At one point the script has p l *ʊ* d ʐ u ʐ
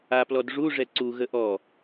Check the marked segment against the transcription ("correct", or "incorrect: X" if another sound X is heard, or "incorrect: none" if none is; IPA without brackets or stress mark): incorrect: ɔ